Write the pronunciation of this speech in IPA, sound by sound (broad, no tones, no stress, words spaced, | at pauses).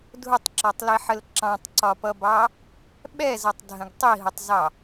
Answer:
dʱʊtˤǁɔtˤliħəl ǁɑ̃tˤǀɒpʌbɑ | ɓɛzʌtˤdʱə̃ɡ tˤiɦʊtˤzɑ